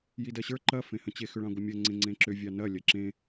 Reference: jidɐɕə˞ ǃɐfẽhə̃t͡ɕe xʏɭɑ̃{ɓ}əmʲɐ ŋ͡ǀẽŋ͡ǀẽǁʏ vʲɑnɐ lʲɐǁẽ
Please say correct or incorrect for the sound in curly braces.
incorrect